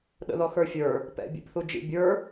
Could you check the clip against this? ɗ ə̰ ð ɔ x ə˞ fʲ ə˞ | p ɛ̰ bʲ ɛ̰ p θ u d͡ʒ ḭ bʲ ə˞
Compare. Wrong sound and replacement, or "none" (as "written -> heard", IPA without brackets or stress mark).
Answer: none